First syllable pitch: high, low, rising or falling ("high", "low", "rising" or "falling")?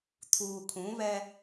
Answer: low